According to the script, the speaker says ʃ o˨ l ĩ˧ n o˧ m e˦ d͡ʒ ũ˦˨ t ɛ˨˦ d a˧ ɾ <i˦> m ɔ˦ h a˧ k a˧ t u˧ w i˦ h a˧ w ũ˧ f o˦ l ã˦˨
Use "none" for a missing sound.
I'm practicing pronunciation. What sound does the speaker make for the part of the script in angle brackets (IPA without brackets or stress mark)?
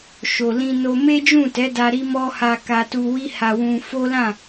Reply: i˦